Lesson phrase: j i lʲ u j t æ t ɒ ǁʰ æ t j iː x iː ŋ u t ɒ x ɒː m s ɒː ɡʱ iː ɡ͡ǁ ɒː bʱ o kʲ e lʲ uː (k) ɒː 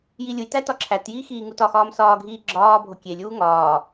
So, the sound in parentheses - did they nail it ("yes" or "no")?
no